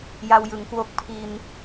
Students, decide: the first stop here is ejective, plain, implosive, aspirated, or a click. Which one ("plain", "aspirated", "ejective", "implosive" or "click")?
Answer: plain